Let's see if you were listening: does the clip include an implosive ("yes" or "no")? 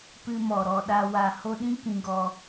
yes